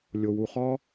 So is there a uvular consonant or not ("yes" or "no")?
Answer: yes